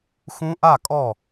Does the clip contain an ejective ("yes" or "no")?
yes